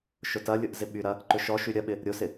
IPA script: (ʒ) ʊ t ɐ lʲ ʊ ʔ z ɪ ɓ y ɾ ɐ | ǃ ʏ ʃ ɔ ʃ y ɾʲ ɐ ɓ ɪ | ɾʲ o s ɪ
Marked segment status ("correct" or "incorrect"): incorrect